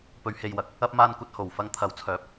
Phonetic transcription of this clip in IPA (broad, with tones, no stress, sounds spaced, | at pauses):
p ɵ˨˧ ɥ h e˨ j w ɐ˨ k̚ | ɐ˧ p̚ m aː˧ n kʷ ɐ˧ t̚ h o˨˩ w f ɐ˧ ŋ t̪ʰ ɐ˨˥ w t͡sʰ œː˨˥ p̚